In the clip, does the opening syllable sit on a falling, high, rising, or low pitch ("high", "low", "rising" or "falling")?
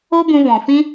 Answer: high